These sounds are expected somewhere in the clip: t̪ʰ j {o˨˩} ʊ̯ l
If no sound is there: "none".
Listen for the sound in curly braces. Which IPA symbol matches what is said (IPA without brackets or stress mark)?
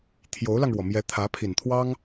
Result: o˧˥